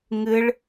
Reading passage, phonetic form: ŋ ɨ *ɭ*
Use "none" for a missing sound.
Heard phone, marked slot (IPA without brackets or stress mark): ɭ